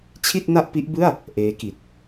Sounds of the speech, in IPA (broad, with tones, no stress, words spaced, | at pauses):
t͡ɕʰi˥˩t̚na˥˩ʔpi˦˥ʔbɯ˥˩a̯ | ʔeː˦˥ki˨˩t̚